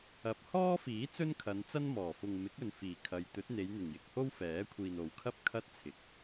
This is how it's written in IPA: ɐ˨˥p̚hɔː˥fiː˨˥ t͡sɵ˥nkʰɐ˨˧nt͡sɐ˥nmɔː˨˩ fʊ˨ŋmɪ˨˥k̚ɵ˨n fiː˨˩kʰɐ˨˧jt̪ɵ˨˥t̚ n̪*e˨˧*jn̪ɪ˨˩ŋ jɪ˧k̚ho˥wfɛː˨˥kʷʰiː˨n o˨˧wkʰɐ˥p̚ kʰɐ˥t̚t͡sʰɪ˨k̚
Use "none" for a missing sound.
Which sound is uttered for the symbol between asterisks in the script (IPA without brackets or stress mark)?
e˨˧